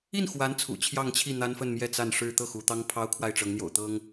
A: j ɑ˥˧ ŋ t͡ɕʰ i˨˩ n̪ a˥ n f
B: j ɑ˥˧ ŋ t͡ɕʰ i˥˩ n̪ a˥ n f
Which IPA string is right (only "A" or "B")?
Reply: B